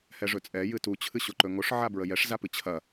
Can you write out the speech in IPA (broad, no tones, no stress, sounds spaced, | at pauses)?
h ɛ ʐ ɵ t͡sʼ ɛ j ɨ t u t͡ɕʰ ɨ ɕ o ǃ ɵ ŋ o ʂ ʕ a b ɹ ə j ɛ ʂ z a p ɨ t͡ɕʰ ɐ